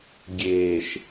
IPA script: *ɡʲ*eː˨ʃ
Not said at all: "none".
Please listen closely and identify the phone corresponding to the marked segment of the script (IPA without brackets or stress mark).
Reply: ɡʲ